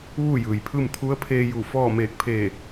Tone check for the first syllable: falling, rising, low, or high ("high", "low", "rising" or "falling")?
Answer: falling